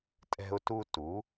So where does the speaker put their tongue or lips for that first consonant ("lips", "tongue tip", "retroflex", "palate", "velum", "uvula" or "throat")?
tongue tip